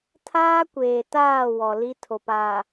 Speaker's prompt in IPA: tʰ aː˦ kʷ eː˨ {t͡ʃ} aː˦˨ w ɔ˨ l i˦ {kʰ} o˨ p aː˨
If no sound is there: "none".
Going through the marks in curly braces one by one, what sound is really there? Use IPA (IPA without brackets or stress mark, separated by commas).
t, tʰ